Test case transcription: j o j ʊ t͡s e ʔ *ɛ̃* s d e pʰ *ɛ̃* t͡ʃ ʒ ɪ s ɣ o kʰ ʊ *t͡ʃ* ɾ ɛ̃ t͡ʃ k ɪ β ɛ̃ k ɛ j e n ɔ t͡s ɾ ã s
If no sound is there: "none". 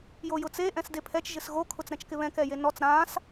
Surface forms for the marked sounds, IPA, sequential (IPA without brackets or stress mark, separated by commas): ɛ̃, ɛ, t͡s